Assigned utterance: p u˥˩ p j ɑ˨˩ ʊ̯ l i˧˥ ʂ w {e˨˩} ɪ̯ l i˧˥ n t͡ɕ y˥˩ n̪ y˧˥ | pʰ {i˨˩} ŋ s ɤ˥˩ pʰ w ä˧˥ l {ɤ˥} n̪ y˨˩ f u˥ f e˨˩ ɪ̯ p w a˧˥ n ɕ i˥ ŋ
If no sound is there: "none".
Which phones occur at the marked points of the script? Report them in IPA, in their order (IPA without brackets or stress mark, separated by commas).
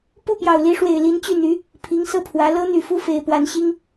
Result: e˨˩, i˧˥, ɤ˥